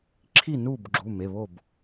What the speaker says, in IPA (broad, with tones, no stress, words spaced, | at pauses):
ǁʰi˥˨nu˥˨b ɡ͡ǁu˩˧˩me˩˧˩βo˥˨b